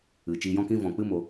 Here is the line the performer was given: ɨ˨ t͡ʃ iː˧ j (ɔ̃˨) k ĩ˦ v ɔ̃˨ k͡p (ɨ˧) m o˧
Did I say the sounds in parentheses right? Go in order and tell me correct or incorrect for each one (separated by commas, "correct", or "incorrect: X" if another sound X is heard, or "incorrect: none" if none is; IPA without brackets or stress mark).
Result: incorrect: ɔ̃˦, incorrect: ɨ˦